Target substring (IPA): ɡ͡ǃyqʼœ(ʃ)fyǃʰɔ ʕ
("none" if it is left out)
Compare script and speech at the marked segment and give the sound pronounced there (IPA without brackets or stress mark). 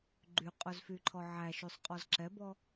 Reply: z